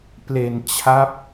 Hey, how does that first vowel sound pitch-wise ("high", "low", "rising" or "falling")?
low